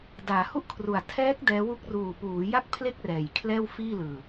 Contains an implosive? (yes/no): no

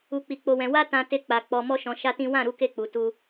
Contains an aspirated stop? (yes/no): no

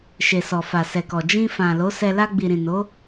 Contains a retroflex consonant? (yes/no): no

